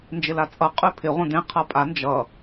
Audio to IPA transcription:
n d͡ʒ ɪ l a t͡sʼ ʌ qʼ ʉ pʰ ɪ ʁʷ ə̃ d ẽ qʰ ʌ pʼ a n d͡ʒ ʌ

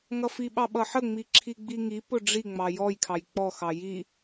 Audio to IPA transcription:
ŋ ʌ f i ɓ ɑ ɓ ʌ ħ ə ŋ͡m i ǁʰ i ɡ͡b i ŋ i p ʊ ɖ͡ʐ i ŋ͡m ɑ j ɔ j kʰ ɑ j k͡p ɔ x ɑ j i

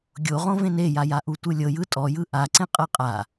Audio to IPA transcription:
ɡʲ o ʁ õ v ẽ n e j a j a ʔ u tʷ ɯ lʲ ɤ j ɯ tʼ ɔ j ɯ ʔ a ǀ ẽ qʼ ɤ qʼ a

